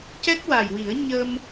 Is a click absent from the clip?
yes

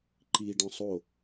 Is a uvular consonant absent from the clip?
yes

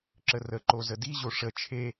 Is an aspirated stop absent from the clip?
no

